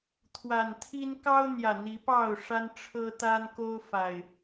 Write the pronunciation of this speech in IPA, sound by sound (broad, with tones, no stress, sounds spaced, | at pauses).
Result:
t̪ʰ w a˨˩ n t̪ʰ i˦ n k ɑ˦ ʊ̯ n̪ j ä˨˩ n̪ i˨˦ p ɑ˥˨ ʊ̯ ʂ a˦ n ʈ͡ʂʰ ɤ˦ t̪ a˦ n k o˦ ʊ̯ f a˨˩ ɪ̯